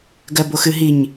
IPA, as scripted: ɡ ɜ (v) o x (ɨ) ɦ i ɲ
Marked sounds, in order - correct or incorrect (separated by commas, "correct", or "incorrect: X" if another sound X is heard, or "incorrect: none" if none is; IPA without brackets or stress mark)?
incorrect: b, correct